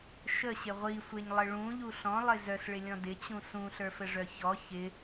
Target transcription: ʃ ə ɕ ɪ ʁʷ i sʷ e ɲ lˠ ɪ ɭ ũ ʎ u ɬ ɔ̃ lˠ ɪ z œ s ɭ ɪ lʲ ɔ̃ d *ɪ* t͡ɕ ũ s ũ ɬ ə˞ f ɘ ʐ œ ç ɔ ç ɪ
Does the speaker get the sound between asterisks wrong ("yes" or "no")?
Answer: no